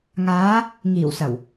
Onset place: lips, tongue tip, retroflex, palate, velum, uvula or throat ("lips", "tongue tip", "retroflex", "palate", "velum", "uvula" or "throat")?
velum